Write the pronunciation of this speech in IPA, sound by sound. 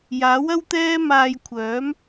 j aː˨˥ w ɐ˥ w t̪ ɛː˥ m aː˧ j kʷʰ œː˨˥ m

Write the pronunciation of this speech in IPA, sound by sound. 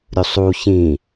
ɾʲ u sˤ u ç ĩ

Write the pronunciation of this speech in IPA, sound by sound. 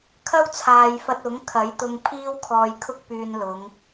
kʰ ɐ˥ w t͡sʰ aː˨ j f ɐ˧ t̚ ʊ˨˥ ŋ kʰ ɐ˨˥ j t̪ ʊ˧ ŋ pʰ iː˥ w kʰ ɔː˧ j kʰ ʊ˥ k̚ p yː˧ n l ʊ˨˧ ŋ

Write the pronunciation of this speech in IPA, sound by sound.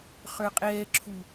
χ ə˞ qʼ ɛː ǁʰ u

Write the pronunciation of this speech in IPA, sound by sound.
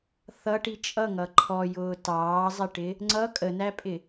θ ʌ ʈ i t͡ʃʼ ʌ ŋ ʌ ǃʰ ɔ j ʊː t ɑː zˤ ɪ ʈ ɪ | ŋ͡ǀ ʌ kʼ ə n æ pʼ ɪ

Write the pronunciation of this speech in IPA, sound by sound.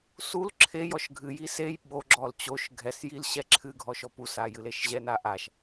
s u l ǁʰ e j ɔ ʃ ɡʱ ɨ j i s e j ɓ o ɡ͡ǁ ɔ l t͡ɕ o ʃ ɡʱ ɛ s j i l ɕ ɛ ǁʰ ɨ ɡʱ ɔ ʃ ɔ p u s a j ɨ l e ʃ ʑ ɛ n a ʔ a ʃ

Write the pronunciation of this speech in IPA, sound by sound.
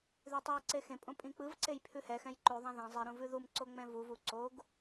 ð ʉ tˤ e j ǀ e x ẽ pʼ õ pʼ ĩ k͡p ɯ v ǀ e j pʰ ʉ h ɛ x ɛ̃ j ǃ ʉ ðˤ ɛ̃ ð ẽ zˤ i ɾ ũ v ʉ ð u m ǀ o ŋ͡m ɛ̃ v u v u ǀ o ɡ

